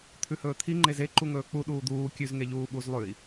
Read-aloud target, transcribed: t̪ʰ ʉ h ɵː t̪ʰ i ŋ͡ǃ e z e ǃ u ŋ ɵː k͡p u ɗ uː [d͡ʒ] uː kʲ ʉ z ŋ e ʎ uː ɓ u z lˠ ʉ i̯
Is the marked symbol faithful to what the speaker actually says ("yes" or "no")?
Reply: no